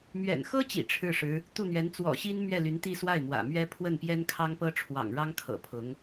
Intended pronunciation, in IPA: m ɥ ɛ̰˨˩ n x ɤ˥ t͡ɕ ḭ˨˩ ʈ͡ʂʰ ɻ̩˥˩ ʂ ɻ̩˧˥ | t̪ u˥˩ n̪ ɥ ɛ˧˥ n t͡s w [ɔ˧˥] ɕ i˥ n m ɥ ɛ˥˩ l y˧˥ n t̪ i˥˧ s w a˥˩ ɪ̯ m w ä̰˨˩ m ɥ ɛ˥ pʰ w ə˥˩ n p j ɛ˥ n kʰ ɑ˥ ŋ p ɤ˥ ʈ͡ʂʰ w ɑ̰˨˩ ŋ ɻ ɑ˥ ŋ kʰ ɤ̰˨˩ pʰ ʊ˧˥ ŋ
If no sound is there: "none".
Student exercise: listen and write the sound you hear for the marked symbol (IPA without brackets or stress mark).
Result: ɔ̰˨˩